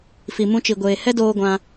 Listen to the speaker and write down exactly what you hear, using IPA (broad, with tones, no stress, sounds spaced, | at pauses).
f i˨ m ũ˧ t͡ʃ i˨ ɡʷ eː˨ h ɛ˦ d oː˧ ɡʷ ã˧